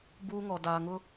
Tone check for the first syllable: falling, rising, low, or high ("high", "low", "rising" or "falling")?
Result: high